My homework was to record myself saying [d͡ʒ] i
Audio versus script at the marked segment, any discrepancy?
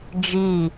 no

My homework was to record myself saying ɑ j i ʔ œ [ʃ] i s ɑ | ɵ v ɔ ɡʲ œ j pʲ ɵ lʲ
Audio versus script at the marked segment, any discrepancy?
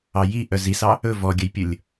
yes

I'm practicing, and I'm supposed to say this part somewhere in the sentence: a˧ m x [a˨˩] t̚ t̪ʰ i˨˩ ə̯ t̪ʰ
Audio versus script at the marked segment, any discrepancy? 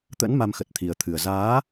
yes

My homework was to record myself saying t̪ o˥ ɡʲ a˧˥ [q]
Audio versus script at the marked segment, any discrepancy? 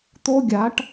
yes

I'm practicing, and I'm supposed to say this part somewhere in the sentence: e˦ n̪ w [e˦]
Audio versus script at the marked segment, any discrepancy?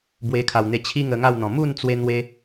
no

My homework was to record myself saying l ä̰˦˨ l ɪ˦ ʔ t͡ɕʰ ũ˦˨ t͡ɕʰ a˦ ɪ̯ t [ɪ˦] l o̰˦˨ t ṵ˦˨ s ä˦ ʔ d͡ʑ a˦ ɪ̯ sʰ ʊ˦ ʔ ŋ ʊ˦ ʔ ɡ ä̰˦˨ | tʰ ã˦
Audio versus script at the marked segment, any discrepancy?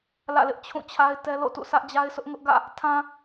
yes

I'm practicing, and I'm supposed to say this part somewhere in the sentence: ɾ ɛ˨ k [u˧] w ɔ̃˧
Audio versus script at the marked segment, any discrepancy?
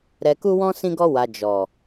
no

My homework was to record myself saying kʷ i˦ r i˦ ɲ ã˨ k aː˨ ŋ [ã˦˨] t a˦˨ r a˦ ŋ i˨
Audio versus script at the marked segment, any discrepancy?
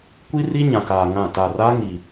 no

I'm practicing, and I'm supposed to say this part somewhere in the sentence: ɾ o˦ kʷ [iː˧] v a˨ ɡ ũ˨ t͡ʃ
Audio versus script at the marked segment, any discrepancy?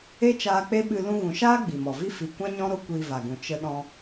no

